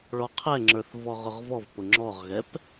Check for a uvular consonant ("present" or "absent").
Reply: present